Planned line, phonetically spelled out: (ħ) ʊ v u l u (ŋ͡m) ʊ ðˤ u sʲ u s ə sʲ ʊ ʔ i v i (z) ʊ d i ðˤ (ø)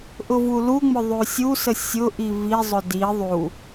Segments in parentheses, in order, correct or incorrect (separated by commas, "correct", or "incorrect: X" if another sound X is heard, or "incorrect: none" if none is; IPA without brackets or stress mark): incorrect: ʔ, correct, incorrect: zˤ, incorrect: u